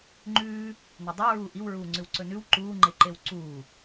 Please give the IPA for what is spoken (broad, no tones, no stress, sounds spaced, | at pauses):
ŋ͡ǃ ʉː | n œ dˤ o ɹ uː ʔ i w ɹ uː ŋ͡ǀ ʉ w ǀ ɵ n ʉ w ǃ uː ŋ͡ǃ e ǃ e w ǀ uː